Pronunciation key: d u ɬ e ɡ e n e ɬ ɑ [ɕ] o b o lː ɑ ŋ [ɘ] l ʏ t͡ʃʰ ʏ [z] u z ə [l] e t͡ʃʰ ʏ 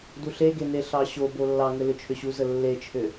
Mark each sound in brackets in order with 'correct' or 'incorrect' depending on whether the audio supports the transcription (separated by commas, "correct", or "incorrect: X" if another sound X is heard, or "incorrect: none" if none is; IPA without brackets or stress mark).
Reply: correct, correct, incorrect: ɕ, incorrect: lː